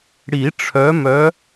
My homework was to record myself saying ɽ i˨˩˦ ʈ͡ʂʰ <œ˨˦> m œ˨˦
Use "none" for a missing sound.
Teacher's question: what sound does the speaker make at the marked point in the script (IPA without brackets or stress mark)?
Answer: œ˨˦